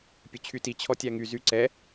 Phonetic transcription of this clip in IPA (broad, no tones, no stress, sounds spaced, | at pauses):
pʲ ɵ t͡ɕʰ y t i t͡ɕʰ ɔ tʲ æ ŋ y z y ǀ ɛ